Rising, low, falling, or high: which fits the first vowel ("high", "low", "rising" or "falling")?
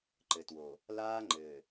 low